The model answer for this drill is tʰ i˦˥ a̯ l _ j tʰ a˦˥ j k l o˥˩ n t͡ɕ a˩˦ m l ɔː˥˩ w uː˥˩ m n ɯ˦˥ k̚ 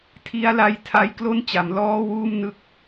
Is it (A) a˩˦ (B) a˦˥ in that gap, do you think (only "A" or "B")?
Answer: B